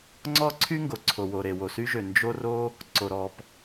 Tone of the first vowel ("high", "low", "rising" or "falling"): high